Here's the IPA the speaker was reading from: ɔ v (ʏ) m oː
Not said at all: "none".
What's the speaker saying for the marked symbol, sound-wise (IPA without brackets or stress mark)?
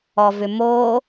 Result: ʏ